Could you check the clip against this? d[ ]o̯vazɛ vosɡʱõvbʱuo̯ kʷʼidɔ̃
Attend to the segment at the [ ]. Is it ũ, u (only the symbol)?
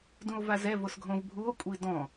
ũ